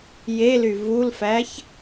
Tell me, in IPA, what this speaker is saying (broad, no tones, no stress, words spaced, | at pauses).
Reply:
jely vulfæç